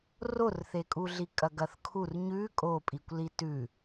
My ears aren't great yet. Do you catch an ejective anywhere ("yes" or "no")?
yes